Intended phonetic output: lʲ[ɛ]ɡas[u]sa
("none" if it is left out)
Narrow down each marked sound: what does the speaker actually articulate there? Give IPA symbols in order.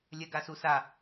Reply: ɛ, u

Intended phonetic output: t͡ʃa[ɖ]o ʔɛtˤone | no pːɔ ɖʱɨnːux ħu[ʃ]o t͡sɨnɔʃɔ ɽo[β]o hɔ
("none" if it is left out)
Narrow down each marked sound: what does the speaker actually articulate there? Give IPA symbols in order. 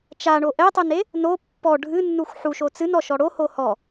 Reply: ɳ, ʃ, h

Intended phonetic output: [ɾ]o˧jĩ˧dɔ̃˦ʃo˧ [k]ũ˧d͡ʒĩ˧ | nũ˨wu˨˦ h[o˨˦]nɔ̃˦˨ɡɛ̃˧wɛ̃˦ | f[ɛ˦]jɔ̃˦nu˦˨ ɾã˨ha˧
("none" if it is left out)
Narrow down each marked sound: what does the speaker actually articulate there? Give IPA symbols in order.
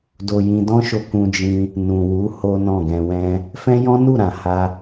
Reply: d, k, o˦, ɛ̃˦

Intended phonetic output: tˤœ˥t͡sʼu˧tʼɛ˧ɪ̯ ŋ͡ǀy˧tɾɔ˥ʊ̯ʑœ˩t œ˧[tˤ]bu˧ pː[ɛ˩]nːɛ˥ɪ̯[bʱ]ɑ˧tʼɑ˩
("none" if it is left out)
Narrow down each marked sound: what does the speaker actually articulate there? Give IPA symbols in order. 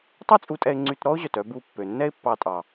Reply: none, ø˩, pː

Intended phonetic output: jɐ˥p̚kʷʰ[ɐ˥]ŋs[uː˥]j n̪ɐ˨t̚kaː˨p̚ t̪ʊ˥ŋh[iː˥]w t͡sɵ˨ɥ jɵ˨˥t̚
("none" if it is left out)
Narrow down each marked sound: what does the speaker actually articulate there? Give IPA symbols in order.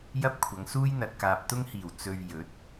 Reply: ɐ˨˧, uː˥, iː˨˩

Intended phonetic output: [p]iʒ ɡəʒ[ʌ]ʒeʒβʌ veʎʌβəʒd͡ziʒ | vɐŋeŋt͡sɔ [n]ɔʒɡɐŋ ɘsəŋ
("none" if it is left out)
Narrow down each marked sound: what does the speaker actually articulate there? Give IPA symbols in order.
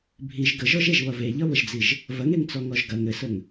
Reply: bʱ, ɔ, ŋ

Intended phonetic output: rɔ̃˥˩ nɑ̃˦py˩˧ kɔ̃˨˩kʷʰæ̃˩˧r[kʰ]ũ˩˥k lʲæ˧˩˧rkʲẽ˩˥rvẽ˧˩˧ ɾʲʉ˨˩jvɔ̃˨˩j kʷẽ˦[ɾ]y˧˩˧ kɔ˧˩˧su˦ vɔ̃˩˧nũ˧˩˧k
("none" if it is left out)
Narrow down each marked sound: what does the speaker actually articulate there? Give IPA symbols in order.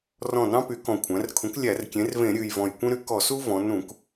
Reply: kʰ, ɾ

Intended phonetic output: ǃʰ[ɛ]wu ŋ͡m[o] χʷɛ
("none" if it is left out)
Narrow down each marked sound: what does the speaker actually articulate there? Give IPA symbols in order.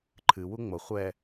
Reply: ɨ, o

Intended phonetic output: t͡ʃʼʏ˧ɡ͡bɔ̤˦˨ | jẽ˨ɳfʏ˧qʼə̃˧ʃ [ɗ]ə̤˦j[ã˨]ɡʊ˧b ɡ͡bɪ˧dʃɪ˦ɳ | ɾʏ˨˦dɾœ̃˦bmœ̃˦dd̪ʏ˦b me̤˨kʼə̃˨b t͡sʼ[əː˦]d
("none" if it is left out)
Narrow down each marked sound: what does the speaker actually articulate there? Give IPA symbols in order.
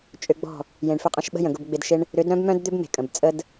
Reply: ɓ, ə̃˨, ə˦

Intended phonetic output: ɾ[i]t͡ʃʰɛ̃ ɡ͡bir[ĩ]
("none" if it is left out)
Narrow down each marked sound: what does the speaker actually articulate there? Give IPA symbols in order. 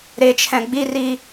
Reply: e, i

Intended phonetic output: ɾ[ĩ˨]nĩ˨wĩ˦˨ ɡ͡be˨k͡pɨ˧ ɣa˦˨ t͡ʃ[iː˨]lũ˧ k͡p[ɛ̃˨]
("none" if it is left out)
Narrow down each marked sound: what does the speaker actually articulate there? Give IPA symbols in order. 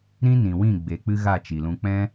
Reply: ĩ˦, i˨, ɛ̃˦

